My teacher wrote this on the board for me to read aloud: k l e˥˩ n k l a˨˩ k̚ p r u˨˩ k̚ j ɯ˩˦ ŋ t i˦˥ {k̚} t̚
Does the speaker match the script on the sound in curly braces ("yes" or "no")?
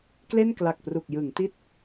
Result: no